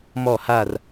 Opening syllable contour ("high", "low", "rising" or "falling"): falling